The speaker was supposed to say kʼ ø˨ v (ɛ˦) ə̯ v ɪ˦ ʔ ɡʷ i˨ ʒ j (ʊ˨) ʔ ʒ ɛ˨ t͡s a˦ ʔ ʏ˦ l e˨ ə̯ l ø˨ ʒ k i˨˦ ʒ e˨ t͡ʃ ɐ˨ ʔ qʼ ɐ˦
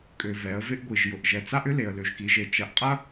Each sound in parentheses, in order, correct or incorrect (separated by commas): incorrect, correct